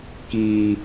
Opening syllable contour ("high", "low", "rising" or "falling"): low